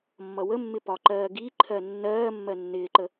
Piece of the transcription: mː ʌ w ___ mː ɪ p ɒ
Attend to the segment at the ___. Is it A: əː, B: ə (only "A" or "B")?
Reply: B